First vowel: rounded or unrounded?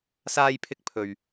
unrounded